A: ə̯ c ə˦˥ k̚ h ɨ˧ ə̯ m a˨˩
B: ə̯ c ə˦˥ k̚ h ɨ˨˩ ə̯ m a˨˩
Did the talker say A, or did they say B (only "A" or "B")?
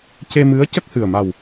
B